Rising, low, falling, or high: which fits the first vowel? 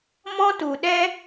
high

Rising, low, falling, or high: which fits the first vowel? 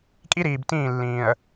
high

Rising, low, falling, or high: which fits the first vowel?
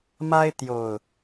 high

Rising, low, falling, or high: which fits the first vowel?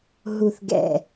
low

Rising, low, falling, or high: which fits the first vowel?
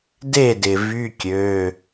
falling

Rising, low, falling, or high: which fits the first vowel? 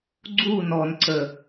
falling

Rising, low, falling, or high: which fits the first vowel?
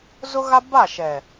high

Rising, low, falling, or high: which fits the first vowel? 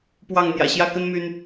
falling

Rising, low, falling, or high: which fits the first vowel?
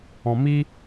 low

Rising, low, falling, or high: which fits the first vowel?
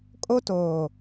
high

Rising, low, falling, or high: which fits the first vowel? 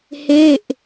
falling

